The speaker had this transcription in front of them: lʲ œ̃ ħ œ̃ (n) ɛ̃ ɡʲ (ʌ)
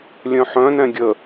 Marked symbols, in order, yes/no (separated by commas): yes, no